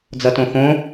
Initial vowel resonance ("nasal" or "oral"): oral